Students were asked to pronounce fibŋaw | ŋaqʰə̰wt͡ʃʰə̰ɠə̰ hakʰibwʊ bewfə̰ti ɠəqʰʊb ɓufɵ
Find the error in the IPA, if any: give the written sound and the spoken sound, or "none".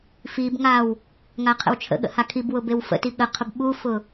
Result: ɵ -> ʊ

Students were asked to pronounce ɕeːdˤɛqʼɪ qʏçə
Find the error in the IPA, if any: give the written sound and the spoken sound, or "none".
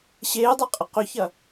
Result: ə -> ɐ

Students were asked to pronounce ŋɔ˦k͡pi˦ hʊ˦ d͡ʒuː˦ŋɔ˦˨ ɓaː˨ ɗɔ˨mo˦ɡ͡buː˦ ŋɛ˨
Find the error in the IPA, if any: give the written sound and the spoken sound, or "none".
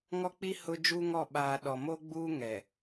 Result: none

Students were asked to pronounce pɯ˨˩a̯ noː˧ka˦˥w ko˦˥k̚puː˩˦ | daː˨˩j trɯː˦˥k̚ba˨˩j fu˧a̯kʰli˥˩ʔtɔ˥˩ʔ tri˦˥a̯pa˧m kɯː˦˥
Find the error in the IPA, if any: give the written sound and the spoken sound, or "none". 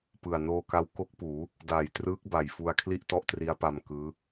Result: none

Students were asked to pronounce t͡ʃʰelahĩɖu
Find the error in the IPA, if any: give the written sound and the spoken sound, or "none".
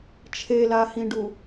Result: none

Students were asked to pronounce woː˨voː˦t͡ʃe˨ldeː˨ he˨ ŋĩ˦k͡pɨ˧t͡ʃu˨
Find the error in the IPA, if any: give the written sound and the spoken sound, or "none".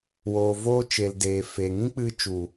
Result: h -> f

